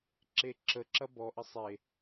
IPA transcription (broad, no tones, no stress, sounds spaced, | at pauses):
ǁ e ǁ ə ǁ ɐ b ɔ ʔ ə sˤ e